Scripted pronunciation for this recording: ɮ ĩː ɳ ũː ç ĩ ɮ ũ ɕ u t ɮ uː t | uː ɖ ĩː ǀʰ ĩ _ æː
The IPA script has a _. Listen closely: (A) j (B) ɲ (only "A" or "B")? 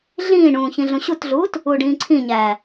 B